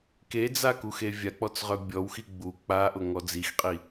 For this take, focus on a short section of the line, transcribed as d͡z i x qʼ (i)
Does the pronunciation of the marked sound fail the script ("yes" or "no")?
no